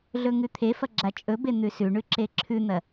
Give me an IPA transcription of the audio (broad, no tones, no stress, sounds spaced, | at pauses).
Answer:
ɮ ɵ ŋ ʉ t̪ʰ e f ɐ ɡ͡ǁ a t͡ʃʼ ɵ b e n̪ ʉ s ʉ ɳ ʉ ǁ e ǁʰ ʉ n̪ ɐ